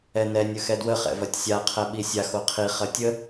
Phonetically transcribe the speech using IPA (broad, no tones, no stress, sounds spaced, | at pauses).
ɛ n ɛ nʲ ɵ x ɛ d w ə χ ɛ̰ v ɐ tʲ sʲ a qʰ ɛ ɓ i sʲ a x o qʰ i χ ɐ tʲ ə